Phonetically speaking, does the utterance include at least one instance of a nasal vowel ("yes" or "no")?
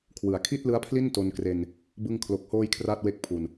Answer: no